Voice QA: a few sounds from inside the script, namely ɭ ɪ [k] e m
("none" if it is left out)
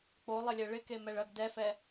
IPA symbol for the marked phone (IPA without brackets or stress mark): k